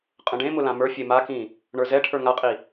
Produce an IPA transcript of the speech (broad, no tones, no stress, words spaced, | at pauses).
qʼə̃ɖẽmʊ lãmə˞fʲe makĩ | ɳə˞zɛʈʰə˞ ŋaqʼi